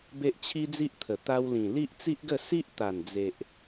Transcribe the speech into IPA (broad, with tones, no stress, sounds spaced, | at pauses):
b e˦ ʔ t͡ɕʰ i˦ d͡z i˦ ʔ t̪ʰ ə˨˩ t̪ a˧ w l ĩ˨˩ l i˦ ʔ t͡s i˦ ʔ ɡ ə˥˧ s i˦ ʔ t̪ a˨˩ n d͡z e˨ ʔ